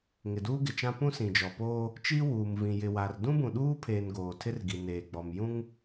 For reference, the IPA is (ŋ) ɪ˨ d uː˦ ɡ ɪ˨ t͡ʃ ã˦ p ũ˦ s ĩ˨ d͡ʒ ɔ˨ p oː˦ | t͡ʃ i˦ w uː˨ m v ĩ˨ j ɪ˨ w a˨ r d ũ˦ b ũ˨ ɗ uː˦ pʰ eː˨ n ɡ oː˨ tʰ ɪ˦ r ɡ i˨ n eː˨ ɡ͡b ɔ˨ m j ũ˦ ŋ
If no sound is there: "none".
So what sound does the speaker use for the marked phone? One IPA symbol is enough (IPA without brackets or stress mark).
ŋ